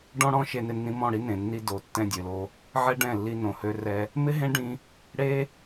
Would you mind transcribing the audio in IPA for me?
ɖ ɔ̃˧ ɽ ɔ̃˧ ʃ e˧ n ɪ˧ nː ĩ˧ m ɔ̃˦˨ ɽ i˦ n ẽ˨ nː i˧ d o˨˦ tː ɛ̃˧ dʲ ø˨ l o˧ | ʕ ɛ˦ ɖ ɛ̃˦˨ lː i˧ n õ˨ h ø˧ r ɛ˧ | m ɪ˦ ɦ ẽ˦ ɖ ĩ˧ | ɽ e˦

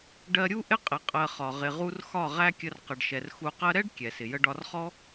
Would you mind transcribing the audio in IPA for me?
ɖ ɜ˧ ɾʲ u˦ ʔ ɪ˦ qʼ ɪ˨ qʼ ɜ˧ χ ɒ˨ ʁ ɪ˨ ʁ u˧ r x ɒ˦˨ ʁ æ˦ kʲ ə˧ r q ə˨ ɖ ʃ ɛ˨ r x u˧ q ɜ˦ ɾ ɛ˦ ɖ kʲ ɛ˨ s ɪ˨ j ə˦ ɖ ɒ˧ r χ ɔ˦

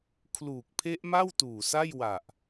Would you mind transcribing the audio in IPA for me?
kʰ l uː˨˩ k̚ pʰ e˦˥ ʔ m a˥˩ w t uː˨˩ s a˥˩ j w a˨˩ ʔ

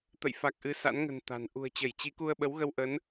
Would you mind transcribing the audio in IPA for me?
t̪ ə̰˧˨ j f a˨˩ k̚ ʔ ɨ˨˦ s a̰˧˥ n ŋ ə̤˨˩ n t̪ a̤˨˩ n ʔ ṳ˨˩ ə̯ t͡ɕ ə˧˩ j t͡ɕ i˨˦ k u˧ ə̯ ɓ ə˨˦ w ɣ ə˧ w ʔ ə˨˦ n

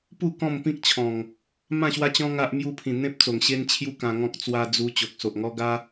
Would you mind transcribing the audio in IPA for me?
p u˥˧ k ɔ̃˥˧ m p ĩ˦ k̚ t͡ɕʰ ɔ̃˨˩ ŋ | m ã˥˧ ɕ w a˦ t͡ɕ ɔ̃˦ ŋ a˦ ʔ m j u˧ pʰ ĩ˨˩ n̪ ẽ˦ p̚ t͡s o˨˩ ŋ ɕ e˦ n t͡ɕʰ j u˦ k ã˧ ŋ ɔ̃˦ k̚ t͡s w a˧ d͡z u˧ t͡ɕ o˨ k̚ s o˨ ʔ ŋ ɔ˦ ɡ a˦

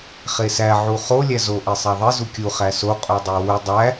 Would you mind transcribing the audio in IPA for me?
χ e s æ ʕ u χ o lʲ æ z o ʔ e sˤ æ ðˤ i z u kʲ u χ æ s o qʼ u dˤ e w u dˤ æ

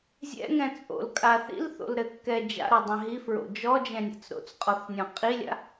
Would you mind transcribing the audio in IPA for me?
zʲ ɛ̰ ŋ ɛ̃ t͡sʼ o̰ l kʼ a θ ḭ l θ o̰ l ɾ ɘ kː ɛ d͡ʒ a̰ ɾ ɔ dˤ ɛ̃ ɦ i f ɹ o̰ d͡ʒ ɔ d͡ʒ ɛ̃ nʲ a̰ t͡s ɾ o̰ t͡s qʼ ɔ θ nʲ ɔ̃ qʼ i lʲ a̰

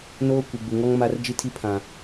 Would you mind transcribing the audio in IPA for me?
n oː˦ kʷ i˨ ɡ͡b u˨ ŋ ɔ˦ ŋ m a˦ r d͡ʒ i˦ tʰ i˦ pʰ ã˨

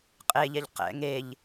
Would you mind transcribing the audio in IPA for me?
qʼ e ʎ ɛ ʎ q ɛ̰ ŋ e ʎ

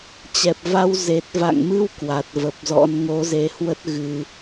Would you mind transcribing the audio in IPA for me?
t͡ɕ ɛ˨˩ p̚ v a˧ w z e˨˩ t̚ v a̰˧˨ ŋ m ɨ˧ w k w a˨˩ t̚ v ə˨˩ p̚ z ɔ̰˧˥ n ŋ o˨˦ z e˨˦ h w ə˦˥ t̚ ɣ ɨ˧

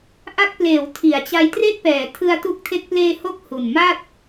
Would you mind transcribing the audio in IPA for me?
ʔ a˦˥ k̚ p l eː˩˦ w tʰ i˩˦ a̯ t͡ɕ a˧ j t r e˥˩ k̚ p ɛː˩˦ tʰ ɯ˧ a̯ t u˦˥ k̚ tʰ e˦˥ k̚ p l eː˧ h o˥˩ k̚ h u˨˩ n m a˥˩ t̚

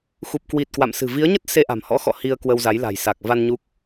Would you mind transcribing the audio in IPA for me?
x u˨˩ p̚ k w i˨˩ t̚ k w a̰˧˨ m s ɨ̤˨˩ v i˨˦ ə̯ ɲ ə˦˥ t̚ s e˧ ʔ a̤˨˩ m h ɔ̰˧˥ x ɔ̰˧˨ h i˧ ə̯ k w ə˧ w z a˨˦ j l a̤˨˩ j s a˨˩ k̚ v a˧ n ɲ u˦˥ k̚

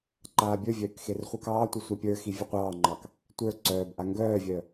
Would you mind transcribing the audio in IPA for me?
ǃ aː bʲ ə˞ vʲ œː k x e r χʷ œ k ɑː tʷ i sʷ a pʲ ə˞ x i vʲ a qʷ ɑː ŋ͡ǃ ɑ k | tʷ ə˞ ǀ œː b ʔ a ŋ ɡ œː vʲ œ

